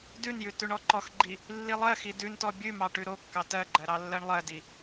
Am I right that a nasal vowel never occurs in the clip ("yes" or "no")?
yes